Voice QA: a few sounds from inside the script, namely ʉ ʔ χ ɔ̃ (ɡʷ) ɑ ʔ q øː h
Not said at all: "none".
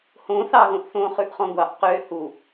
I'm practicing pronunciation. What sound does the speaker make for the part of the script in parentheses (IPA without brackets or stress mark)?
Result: ɡʷ